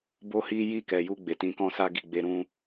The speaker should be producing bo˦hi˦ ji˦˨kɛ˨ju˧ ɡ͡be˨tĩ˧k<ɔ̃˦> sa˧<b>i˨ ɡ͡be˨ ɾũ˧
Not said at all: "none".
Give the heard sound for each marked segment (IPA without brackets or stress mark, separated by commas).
ɔ̃˦, ɡ